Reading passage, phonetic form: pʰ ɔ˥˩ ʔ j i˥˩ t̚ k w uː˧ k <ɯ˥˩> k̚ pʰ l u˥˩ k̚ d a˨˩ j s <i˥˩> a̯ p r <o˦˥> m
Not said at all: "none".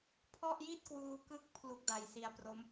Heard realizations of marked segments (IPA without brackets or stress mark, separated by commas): ɯ˦˥, i˧, o˦˥